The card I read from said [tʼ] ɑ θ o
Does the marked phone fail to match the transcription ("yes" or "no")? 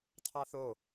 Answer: yes